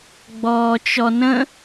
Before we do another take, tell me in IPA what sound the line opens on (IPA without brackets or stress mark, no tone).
ɡ͡b